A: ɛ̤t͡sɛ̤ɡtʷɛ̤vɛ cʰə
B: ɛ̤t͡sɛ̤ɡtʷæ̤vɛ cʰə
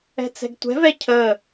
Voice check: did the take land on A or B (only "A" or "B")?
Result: A